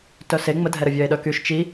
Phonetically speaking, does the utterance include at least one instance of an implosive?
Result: yes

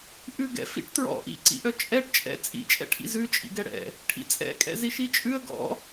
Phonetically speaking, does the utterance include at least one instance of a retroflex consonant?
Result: yes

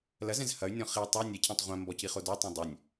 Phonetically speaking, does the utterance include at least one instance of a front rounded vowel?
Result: yes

